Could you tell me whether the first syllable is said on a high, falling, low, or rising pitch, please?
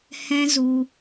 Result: high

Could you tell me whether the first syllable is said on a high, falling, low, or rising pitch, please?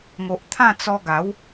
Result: low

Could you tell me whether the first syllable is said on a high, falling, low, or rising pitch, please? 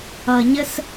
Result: low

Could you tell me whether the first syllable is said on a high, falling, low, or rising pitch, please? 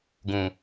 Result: low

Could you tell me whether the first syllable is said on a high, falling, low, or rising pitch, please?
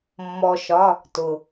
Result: low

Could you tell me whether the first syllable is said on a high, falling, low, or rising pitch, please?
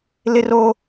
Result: high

